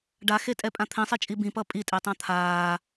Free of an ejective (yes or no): no